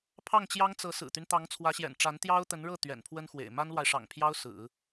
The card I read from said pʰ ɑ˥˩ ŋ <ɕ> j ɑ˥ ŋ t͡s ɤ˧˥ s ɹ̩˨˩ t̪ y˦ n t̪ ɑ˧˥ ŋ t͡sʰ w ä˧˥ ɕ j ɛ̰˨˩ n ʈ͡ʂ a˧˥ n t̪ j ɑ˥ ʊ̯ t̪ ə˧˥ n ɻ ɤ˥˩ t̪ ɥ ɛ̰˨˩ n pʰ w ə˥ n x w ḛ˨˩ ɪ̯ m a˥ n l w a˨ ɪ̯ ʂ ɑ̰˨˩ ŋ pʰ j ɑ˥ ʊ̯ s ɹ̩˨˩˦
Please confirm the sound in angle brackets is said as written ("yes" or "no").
no